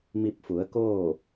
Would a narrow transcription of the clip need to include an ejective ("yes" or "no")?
no